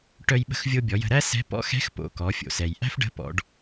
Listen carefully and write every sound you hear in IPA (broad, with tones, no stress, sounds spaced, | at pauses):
ʈ œ˧ j ɓ ə̤˧ x vʲ o˧ bʲ ɔ˩˧ j ə̤˧ ɾ æ˥ s ɛ̤˧˥ p ɔ̰˧˥ x ɛ̤˧˥ x p o̰˩ k ɔ˩˧ fʲ o̰˩ s ɛ˩ j ʔ æ̤˥ f ɖ ə̤˧˥ p ɔ̰˩˧ ɖ